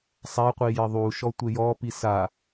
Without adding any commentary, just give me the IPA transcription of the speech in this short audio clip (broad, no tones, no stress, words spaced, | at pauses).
sˤaqʷi jɪðˤuʃɔ tʷejɔpi sa